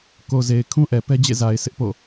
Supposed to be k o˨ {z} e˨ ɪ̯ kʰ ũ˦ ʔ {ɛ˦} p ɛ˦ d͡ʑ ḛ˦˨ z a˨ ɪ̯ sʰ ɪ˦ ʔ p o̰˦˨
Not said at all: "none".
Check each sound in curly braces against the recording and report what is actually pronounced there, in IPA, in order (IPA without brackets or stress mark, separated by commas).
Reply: z, ɛ˨